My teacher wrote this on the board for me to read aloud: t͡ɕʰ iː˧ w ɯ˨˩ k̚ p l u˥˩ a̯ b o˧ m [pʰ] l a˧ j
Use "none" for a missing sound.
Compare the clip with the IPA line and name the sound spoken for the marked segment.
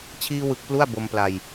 p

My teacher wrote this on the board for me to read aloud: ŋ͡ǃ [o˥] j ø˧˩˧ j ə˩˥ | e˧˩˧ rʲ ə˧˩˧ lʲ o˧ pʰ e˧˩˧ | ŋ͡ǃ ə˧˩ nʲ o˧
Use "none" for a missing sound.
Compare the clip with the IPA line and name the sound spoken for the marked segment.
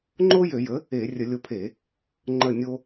o˥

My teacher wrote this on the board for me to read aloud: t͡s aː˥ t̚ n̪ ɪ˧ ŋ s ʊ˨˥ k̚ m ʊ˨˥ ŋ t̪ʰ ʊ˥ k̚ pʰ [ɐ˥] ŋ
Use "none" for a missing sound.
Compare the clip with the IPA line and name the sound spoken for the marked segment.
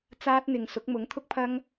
ɐ˥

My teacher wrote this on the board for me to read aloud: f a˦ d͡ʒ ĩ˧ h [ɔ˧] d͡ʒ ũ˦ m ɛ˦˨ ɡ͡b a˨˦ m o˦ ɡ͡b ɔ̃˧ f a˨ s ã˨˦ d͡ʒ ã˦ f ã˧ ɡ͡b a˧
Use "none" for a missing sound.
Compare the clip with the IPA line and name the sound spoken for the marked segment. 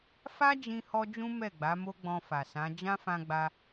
ɔ˧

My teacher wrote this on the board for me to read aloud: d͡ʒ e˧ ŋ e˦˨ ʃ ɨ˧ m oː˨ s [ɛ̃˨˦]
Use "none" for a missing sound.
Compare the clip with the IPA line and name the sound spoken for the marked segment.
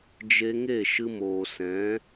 ɛ̃˨˦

